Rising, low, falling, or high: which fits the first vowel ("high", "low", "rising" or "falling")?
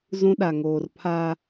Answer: high